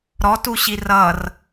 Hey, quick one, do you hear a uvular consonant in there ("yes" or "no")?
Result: no